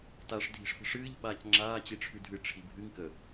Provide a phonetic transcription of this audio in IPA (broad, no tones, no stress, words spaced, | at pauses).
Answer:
taʂ dʱi̤ʂpə̤ʂɨːʎ ɓaːcŋ͡ǁaː t͡ɕiʈ͡ʂʰʉdʱɨ ʈ͡ʂʰibʱɨŋ kə